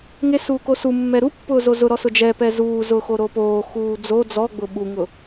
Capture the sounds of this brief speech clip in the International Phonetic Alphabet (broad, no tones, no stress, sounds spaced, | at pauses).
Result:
ŋ e s uː k o s u mː ɛ ɾ u pː ʊː z o z ʊ ɾ ɔ s ʊ d͡ʒ ɛ p ɛ z uː z ʊ x o ɾ o p oː x uː d͡z o d͡z ɔ ɡ͡b ʊ ɓ u ŋ ʊ